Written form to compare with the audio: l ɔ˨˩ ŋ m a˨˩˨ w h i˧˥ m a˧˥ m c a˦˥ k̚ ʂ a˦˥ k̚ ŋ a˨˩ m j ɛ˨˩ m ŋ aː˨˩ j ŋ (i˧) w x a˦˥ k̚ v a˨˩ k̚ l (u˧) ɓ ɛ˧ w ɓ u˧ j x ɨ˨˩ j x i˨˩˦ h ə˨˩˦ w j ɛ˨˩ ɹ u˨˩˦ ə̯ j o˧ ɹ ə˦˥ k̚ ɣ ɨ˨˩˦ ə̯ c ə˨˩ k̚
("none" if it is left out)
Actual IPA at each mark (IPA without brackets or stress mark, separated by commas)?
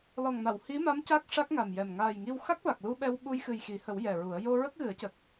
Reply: i˧, u˧